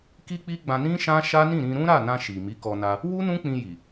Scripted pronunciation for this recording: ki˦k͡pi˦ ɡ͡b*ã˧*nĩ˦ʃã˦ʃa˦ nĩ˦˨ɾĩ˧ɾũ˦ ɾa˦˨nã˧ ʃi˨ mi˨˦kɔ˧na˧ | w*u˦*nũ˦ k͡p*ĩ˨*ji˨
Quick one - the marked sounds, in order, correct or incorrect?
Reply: correct, correct, incorrect

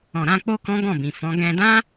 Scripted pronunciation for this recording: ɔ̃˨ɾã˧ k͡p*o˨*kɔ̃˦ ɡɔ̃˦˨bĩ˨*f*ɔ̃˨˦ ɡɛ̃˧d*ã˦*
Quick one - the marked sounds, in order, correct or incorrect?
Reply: incorrect, correct, correct

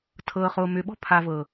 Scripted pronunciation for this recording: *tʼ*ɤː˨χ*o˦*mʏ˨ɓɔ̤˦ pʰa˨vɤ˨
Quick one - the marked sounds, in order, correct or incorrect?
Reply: incorrect, incorrect

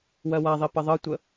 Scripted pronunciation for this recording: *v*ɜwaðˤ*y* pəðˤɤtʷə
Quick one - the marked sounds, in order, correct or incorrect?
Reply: incorrect, incorrect

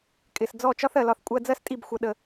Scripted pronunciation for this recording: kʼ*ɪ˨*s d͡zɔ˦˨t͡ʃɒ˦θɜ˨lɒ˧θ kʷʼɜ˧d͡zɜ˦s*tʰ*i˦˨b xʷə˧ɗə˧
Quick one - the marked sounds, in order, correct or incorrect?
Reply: correct, incorrect

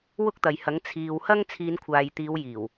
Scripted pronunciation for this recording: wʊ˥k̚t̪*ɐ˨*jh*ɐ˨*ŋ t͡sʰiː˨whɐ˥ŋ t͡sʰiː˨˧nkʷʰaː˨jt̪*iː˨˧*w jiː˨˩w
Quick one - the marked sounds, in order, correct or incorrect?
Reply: correct, incorrect, correct

